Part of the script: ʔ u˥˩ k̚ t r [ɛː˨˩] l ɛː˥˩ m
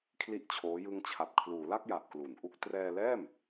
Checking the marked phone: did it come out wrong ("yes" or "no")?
yes